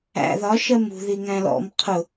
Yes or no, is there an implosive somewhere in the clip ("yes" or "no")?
no